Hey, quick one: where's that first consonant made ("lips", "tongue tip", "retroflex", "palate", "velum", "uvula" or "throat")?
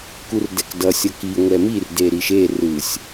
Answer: velum